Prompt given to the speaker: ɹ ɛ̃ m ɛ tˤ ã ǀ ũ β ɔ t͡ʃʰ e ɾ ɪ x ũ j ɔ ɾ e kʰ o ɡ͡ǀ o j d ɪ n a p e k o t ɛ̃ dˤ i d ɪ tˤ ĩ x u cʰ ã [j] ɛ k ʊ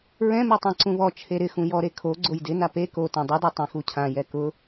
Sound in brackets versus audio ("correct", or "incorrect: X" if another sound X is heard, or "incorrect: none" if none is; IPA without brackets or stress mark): correct